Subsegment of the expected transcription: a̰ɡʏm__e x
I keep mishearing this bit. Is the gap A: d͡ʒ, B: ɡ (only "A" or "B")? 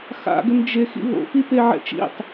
A